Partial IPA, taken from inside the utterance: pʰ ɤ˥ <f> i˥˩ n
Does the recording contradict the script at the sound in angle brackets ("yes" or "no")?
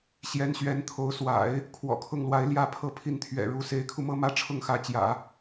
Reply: yes